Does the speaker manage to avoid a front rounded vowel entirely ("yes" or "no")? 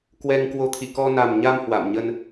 yes